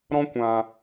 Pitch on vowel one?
high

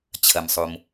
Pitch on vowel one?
low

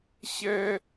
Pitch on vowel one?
high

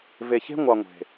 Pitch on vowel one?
low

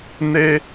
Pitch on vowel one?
high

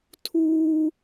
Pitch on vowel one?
high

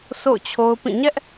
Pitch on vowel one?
falling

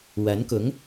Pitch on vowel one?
rising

